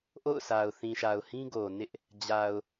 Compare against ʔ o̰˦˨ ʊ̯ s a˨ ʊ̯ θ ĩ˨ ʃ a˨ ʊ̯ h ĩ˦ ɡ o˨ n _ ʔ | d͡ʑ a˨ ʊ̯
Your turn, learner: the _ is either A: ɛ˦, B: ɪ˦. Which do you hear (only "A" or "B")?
B